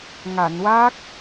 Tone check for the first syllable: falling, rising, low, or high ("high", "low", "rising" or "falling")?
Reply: low